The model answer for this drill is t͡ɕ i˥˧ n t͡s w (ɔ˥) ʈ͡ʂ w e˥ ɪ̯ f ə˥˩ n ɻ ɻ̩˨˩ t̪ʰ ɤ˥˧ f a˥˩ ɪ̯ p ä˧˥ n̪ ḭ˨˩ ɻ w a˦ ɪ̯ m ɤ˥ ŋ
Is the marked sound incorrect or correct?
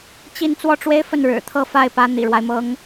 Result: incorrect